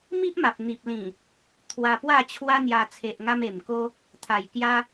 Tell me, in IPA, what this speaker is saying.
m i˦ ʔ m a˨ p̚ n̪ i˨ p̚ l ĩ˨˩ | t̪ʰ w a˧ p w a˥˧ t͡ɕʰ w a˦ n̪ j a˧ t͡sʰ e˨ ʔ ŋ a˧ m e˨˩ m k o˦ | t̪ʰ a˨˩ j k j a˧

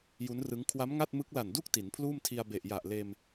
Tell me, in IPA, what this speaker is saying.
j u˦˥ n r ɯ˦˥ ŋ kʰ w a˦˥ m ŋ a˥˩ t̚ m ɯ˦˥ k̚ l a˨˩ n d u˥˩ k̚ t i˩˦ n pʰ l uː˥˩ m tʰ i˧ a̯ b e˨˩ ʔ j a˨˩ ʔ l eː˧ m

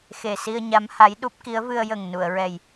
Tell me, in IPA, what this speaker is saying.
x e˨˩ s i˧ ə̯ ɲ a˧˥ m h a˧˥ j ɗ u˦˥ p̚ k i˧˥ ə̯ v ɨ˧ ə̯ j ə˨˩ ŋ n u˨˩˨ ə̯ ɹ ɛ˨˩ j

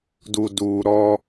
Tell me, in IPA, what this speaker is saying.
d u˨ d uː˨ ɾ ɔ˦

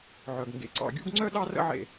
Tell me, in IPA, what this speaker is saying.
ʕ œ˩ ɡ ŋ ɡ ḛ˩ ǀ ɑ̰˧˩ ɡʲ ṵ˥˧ ɡ ŋ͡ǀ œ˥˧ ɗ ɑ˥˧ r ə̰˥˧ ʕ ḛ˧˩

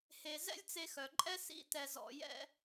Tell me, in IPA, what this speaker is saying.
h e˧ z ɛ̰˦ lʲ t͡s e˧ x œ˨ ǃʼ ɛ˦ s ḭ˦ t ɛ˧ z ɔ̰˧ j ɛ̰˦

